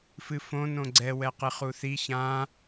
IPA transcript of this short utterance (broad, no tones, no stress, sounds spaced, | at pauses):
f ɨ f õ n õ ɡ͡ǀ ɛ w ɛ q ɨ χ u θ i ç ã